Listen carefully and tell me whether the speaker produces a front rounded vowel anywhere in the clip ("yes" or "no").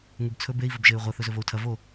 yes